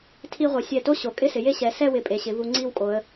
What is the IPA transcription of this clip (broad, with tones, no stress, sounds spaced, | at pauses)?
tʰ i˧ ʁʷ e˩˧ sʲ ɛ˧˩ t o˥ ɕ o˩˧ kʼ ɪ˥˧ s ɪ˩˧ j e˥˧ ɕ ɛ˩˧ s ɛ˥˧ w ɪ˧˩ pʼ e˩˧ ɕ ɪ˩˧ v u˧ ŋ͡ǀ i˥˧ w kʼ o˩˧ ə̯